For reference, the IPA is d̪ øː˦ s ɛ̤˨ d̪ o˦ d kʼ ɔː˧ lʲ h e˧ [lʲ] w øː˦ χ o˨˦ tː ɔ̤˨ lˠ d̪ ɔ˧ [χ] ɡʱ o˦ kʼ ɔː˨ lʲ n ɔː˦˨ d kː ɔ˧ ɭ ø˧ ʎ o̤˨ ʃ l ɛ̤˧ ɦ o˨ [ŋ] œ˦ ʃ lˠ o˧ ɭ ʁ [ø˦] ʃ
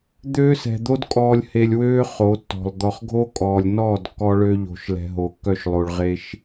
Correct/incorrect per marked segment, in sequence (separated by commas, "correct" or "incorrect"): correct, correct, incorrect, incorrect